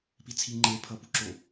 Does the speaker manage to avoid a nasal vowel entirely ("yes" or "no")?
yes